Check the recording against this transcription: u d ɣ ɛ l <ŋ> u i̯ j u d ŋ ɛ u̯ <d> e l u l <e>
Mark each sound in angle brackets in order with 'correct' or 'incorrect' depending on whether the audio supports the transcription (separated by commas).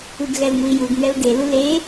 correct, correct, correct